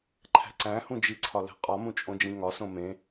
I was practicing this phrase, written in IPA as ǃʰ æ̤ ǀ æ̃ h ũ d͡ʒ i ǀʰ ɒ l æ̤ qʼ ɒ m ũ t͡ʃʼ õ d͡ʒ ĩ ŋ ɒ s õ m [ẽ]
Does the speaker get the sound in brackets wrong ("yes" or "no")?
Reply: no